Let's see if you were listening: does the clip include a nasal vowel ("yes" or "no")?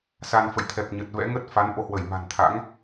no